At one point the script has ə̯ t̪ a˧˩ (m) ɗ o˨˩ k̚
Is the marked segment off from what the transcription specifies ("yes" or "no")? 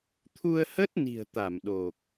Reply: no